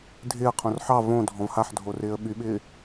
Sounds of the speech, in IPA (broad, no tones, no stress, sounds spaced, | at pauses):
dʱ ɪː ə̯ qʰ õ r ħ ɑ v õ dʱ ɔ̃ v h a ħ dʱ o r ɪː ə̯ ɓ y ɓ ɪː